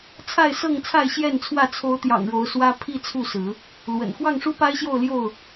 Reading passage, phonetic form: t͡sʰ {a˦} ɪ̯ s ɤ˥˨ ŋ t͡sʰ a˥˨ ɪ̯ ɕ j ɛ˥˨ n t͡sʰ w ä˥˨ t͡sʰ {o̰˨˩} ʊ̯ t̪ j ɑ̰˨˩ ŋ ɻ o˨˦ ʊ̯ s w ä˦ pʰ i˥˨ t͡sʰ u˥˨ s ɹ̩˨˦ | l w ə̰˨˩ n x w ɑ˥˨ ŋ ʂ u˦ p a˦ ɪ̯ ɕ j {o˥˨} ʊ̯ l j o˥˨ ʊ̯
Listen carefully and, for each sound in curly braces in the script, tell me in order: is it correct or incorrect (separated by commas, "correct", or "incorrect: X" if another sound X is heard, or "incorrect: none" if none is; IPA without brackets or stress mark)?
incorrect: a˥˨, incorrect: o˨˦, correct